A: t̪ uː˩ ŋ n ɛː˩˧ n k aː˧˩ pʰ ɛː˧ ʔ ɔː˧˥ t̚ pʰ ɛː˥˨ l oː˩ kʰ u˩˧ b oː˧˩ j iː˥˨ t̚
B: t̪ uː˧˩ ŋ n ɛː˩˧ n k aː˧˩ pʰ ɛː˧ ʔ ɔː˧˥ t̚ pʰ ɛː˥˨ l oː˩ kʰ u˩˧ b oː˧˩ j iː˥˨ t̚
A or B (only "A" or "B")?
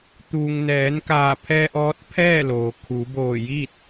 A